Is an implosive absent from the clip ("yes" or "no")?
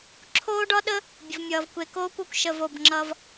no